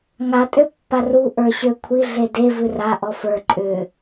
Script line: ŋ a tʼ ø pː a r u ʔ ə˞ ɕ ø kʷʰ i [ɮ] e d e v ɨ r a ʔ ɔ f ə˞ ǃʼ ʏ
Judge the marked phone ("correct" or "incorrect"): correct